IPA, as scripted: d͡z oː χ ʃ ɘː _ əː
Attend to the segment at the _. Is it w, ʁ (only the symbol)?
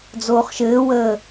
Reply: w